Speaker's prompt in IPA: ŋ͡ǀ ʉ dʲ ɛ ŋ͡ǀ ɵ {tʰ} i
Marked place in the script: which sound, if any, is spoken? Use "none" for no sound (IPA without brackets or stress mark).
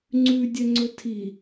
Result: tʰ